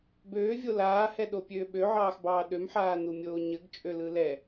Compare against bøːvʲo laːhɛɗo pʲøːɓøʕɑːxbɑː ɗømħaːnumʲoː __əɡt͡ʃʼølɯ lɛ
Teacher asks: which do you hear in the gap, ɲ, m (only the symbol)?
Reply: ɲ